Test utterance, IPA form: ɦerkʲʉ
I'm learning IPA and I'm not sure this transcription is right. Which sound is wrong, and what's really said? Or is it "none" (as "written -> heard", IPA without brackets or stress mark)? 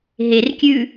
none